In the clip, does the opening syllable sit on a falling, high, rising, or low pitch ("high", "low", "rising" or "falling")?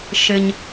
low